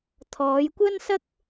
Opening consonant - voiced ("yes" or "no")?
no